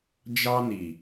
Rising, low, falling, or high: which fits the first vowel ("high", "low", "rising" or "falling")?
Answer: high